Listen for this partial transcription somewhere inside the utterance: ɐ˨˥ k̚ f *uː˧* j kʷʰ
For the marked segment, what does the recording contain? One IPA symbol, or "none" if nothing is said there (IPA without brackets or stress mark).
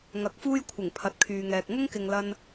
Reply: uː˥